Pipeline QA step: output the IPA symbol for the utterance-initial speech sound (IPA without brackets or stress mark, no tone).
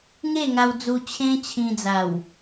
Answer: ŋ